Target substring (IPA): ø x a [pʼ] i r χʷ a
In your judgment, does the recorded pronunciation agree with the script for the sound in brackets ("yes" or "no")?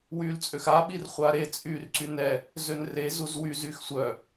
no